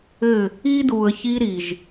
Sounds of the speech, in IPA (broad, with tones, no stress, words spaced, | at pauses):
ɘ˦˨ | iː˦duː˨ə̯ çiː˦ɾi˨ʒ